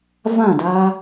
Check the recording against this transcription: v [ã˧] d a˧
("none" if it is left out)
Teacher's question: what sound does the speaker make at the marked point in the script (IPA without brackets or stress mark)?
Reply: ã˥˩